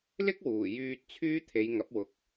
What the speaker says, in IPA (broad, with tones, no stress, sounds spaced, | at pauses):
l ɪ˥ k̚ w uː˨˩ j yː˧ t̚ t͡sʰ yː˥ t̪ʰ e˨˧ j ŋ ɐ˨˥ p̚ w ʊ˨ k̚